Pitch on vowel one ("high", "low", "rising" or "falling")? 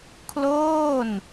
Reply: falling